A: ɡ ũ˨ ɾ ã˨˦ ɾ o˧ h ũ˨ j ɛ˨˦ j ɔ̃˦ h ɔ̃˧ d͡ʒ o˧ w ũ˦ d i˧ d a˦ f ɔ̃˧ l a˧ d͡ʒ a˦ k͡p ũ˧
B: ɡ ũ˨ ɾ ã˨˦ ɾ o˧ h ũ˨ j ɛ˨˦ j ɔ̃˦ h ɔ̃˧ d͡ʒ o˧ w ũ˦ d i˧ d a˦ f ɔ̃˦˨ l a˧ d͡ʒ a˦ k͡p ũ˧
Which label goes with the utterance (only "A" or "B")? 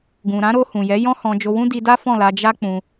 B